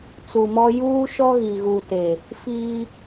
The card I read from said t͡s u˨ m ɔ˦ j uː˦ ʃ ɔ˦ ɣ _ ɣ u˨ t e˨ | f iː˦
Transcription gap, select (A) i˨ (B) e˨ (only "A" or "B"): A